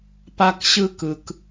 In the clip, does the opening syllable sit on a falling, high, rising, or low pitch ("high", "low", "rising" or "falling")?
high